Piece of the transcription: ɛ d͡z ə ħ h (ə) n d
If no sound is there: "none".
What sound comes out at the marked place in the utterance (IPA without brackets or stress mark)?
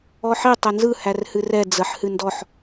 ɨ